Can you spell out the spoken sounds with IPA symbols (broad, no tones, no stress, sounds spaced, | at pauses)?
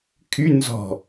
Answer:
kʰ y n z ɔ̤